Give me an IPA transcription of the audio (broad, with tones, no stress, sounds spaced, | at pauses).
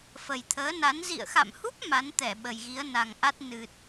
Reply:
f ə˨˩ j t̪ʰ əː˨˦ n a˨˦ n z ḭ˧˨ ə̯ x a̰˧˨ m h u˦˥ p̚ m a˨˦ n t̪ ɛ˧˩ ɓ ə˨˩ j ɣ i˨˦ ə̯ n a˨˩ ŋ ʔ a˦˥ t̚ n ɨ˨˩ t̚